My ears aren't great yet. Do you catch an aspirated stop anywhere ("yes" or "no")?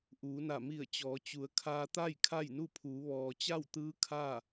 yes